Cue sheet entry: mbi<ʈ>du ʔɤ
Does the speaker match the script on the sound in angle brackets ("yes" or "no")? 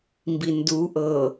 no